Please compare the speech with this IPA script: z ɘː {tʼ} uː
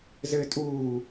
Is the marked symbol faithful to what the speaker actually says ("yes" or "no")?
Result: yes